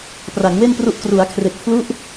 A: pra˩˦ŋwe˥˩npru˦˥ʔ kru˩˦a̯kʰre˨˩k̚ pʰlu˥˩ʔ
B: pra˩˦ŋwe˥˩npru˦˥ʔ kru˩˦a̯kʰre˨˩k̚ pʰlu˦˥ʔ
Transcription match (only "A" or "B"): B